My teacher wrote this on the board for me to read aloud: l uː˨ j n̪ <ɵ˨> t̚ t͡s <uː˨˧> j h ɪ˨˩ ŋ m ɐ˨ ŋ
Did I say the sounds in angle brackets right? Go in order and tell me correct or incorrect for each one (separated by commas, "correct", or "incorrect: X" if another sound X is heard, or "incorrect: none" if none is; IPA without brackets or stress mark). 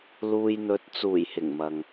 correct, incorrect: uː˨˩